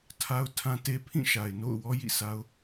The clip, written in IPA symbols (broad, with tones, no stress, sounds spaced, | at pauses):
tʰ a˦ ʊ̯ tʰ ã˦ t e˦ pʰ ĩ˦˨ ʃ a˨ ɪ̯ n o̰˦˨ ʊ̯ w ɔ˦ j ḭ˦˨ sʰ a˦ ʊ̯